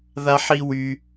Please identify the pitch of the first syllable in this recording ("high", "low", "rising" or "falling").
high